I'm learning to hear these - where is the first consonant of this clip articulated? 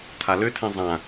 tongue tip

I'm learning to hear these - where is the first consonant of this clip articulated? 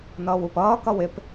tongue tip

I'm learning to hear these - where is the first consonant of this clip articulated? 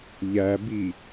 palate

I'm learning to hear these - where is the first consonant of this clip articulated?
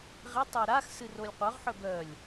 uvula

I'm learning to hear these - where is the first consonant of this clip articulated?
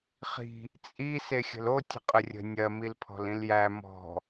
uvula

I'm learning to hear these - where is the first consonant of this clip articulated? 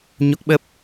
palate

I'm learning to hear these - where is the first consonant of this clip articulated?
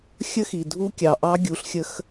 velum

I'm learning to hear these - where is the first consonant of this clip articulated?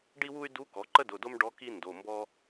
retroflex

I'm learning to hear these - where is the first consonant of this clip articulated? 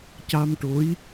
palate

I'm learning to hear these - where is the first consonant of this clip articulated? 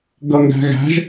velum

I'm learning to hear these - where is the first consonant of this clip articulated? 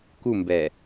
velum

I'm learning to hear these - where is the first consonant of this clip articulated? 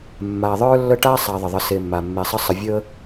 lips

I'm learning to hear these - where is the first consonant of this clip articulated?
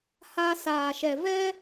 throat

